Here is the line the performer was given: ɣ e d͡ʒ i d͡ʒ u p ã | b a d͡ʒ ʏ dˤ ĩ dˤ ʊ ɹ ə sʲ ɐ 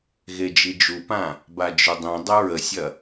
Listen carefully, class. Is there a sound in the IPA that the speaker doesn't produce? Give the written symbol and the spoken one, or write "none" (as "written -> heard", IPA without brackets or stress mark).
none